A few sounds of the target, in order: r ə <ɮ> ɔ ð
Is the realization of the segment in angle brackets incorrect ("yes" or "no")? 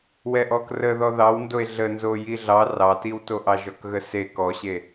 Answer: yes